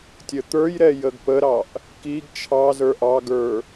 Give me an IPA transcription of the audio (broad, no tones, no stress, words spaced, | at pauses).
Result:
tʲət̪ə˞jɾɛ jəɡpəɾɑʔ | kiɡ t͡ʃʰɑzə˞ ʔɑɡə˞